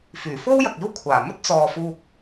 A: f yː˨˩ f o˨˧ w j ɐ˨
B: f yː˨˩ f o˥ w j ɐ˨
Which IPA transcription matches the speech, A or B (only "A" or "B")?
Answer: B